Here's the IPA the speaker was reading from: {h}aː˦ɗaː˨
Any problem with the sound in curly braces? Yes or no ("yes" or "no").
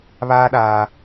yes